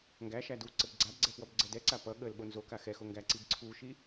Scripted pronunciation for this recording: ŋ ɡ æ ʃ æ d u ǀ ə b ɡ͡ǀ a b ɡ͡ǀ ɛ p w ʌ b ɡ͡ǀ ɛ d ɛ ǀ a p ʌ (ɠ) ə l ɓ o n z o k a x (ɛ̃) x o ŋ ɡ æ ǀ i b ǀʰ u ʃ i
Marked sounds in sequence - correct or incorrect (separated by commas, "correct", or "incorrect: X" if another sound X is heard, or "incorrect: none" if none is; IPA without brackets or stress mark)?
correct, incorrect: ɛ